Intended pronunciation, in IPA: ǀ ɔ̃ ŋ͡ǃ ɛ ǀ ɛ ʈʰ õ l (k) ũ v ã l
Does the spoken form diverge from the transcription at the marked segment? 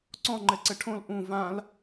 yes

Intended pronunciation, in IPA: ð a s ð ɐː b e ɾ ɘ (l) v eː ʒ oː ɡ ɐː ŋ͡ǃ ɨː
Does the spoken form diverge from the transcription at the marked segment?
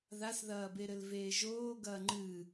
no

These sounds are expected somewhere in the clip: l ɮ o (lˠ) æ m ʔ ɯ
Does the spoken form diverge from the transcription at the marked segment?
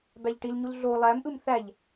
no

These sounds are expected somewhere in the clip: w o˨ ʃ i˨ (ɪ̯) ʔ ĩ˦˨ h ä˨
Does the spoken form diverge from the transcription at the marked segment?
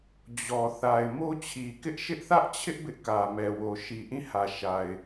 yes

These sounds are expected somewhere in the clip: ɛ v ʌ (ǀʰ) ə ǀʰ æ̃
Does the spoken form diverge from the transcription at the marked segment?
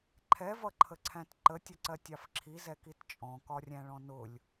yes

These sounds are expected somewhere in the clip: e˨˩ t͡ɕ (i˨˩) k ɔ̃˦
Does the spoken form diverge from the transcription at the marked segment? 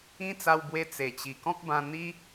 no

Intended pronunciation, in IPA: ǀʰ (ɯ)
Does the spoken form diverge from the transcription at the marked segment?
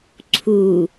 yes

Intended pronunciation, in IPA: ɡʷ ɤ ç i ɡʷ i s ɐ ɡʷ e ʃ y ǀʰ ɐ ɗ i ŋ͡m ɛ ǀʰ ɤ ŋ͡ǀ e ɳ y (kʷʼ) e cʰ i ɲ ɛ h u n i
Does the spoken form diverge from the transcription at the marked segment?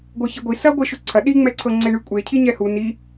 no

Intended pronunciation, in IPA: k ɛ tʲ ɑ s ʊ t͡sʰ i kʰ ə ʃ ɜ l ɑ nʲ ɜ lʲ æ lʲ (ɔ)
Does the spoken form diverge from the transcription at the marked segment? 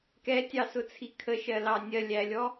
no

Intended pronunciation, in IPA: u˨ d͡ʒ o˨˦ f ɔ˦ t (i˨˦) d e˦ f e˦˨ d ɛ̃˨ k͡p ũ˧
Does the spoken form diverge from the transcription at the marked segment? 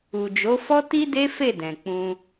yes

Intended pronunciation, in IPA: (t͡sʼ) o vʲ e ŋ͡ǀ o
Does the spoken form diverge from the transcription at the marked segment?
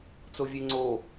yes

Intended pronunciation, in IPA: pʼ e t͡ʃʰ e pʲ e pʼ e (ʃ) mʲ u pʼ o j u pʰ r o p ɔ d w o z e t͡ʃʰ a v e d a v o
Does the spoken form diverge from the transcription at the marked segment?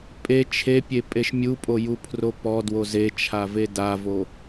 no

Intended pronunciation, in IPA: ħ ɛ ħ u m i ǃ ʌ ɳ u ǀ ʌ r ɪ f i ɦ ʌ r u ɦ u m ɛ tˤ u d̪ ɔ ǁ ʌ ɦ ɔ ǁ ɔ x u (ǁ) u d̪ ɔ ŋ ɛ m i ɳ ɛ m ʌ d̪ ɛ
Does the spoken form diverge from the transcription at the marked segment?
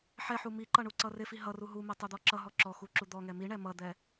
no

